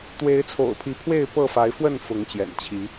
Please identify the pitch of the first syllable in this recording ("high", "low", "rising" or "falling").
rising